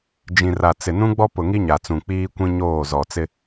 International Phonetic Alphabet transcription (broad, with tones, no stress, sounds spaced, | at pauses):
d͡ʒ ĩ˨ r a˨ t͡s ɪ˨ n ũ˦ ɡ͡b ɔ˦ p ʊ˨ ŋ i˦ ɲ a˨ t͡s ũ˨ k͡p iː˦ kʷ ĩ˦ ɲ oː˦˨ z ɔ˨ t͡s ɪ˦